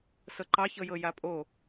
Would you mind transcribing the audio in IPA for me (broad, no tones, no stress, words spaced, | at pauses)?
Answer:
sɤǃɑ çɤjɤjapʼo